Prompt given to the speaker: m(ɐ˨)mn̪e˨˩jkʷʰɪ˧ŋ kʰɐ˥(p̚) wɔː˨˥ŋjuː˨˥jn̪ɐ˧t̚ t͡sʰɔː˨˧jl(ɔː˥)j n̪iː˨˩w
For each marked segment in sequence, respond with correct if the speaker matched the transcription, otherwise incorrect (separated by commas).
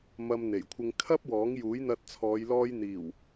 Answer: incorrect, correct, incorrect